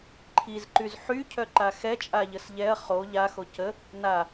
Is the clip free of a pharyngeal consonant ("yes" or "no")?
no